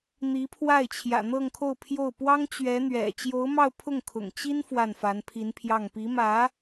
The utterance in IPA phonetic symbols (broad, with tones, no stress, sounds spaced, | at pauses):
n̪ i˧˥ pʰ w a˥˩ ɪ̯ t͡ɕʰ j ä̰˨˩ n̪ ɤ˥˧ ŋ kʰ o˥˧ ʊ̯ pʰ j o˥˩ ʊ̯ p w ɑ˥ ŋ t͡ɕ ɥ ɛ˧˥ n̪ ɥ ɛ̰˨˩ t͡ɕ j o˧˥ ʊ̯ m ɑ˥˧ ʊ̯ pʰ ʊ˥˩ ŋ kʰ ʊ̰˨˩ ŋ t͡ɕ i˥ n f w a˥˩ n f a˧˥ n pʰ i˧˥ n pʰ j ɑ˥˩ ŋ p i˧˥ m ä˧˥